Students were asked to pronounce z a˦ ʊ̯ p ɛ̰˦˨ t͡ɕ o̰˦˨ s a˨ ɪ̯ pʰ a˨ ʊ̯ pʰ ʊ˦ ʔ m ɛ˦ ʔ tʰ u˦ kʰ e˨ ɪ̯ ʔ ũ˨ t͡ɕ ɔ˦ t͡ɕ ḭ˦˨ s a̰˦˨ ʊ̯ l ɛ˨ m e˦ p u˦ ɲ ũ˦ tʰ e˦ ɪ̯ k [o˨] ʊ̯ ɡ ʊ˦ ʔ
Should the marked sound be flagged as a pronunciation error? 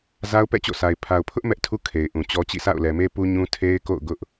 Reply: yes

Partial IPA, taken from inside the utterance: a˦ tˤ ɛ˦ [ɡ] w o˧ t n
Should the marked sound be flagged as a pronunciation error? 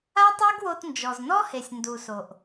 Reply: no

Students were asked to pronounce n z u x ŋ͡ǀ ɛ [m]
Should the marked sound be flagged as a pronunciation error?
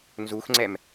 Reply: no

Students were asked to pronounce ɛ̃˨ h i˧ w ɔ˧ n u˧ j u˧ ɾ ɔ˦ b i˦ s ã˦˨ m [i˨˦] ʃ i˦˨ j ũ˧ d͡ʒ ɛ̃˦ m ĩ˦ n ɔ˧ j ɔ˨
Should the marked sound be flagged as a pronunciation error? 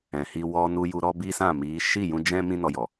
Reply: no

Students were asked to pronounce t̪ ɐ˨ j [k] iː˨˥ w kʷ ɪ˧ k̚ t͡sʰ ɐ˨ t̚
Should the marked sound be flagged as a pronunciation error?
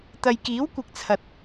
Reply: no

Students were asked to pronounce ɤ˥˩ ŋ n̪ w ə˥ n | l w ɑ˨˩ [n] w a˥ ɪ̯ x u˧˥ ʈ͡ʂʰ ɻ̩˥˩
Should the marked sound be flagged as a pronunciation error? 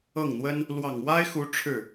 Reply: yes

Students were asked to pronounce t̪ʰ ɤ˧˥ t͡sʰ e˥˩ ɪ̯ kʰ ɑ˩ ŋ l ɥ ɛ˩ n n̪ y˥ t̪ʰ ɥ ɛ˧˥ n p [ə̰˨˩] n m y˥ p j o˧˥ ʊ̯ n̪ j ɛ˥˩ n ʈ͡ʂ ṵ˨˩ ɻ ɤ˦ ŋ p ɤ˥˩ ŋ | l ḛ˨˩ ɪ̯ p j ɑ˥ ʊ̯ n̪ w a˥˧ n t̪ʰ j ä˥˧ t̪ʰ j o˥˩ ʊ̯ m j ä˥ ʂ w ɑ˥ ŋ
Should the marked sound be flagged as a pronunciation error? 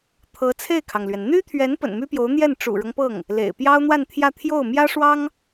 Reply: no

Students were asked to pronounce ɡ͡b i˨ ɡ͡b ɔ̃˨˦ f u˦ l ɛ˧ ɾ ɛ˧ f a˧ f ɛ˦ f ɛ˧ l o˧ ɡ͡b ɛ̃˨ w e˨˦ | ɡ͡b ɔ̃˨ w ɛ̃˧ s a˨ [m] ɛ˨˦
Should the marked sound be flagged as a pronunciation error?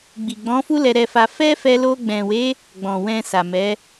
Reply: no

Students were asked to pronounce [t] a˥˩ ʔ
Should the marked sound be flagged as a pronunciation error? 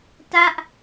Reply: no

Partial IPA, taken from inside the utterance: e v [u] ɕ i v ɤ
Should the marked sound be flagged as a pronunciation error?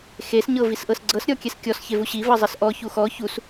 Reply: no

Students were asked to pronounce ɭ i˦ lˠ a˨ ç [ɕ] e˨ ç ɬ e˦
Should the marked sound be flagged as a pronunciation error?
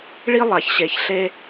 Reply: no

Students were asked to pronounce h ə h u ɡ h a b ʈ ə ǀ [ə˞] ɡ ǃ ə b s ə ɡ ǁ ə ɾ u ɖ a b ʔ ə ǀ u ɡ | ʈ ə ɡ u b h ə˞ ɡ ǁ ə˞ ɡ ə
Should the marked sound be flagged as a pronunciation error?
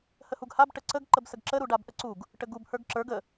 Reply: yes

